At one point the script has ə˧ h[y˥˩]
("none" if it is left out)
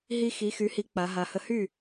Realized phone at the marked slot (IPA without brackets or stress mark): y˥˩